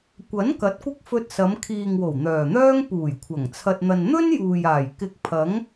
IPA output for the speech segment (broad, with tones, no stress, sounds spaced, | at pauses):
kʷ ɐ˨˥ n k ɐ˨˥ t̚ kʷ ɪ˥ k̚ f ɵ˧ t̚ s ɐ˨˧ m kʰ iː˨ ŋ w o˨˩ w n̪ œː˨˩ n̪ œː˥ ŋ p uː˨˩ j kʷʰ ɐ˨˩ ŋ t͡sʰ ɐ˧ t̚ n̪ ɐ˧ n n̪ ɵ˥ n j uː˨ j aː˨˩ j k ɪ˧ k̚ pʰ ɐ˨˥ ŋ